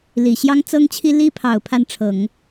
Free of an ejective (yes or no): yes